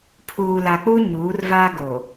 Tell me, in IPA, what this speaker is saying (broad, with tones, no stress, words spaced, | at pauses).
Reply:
pʰuː˨la˨k͡pu˦ ɲuː˨˦rvaː˦ ɡo˨